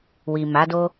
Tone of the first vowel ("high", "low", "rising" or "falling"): low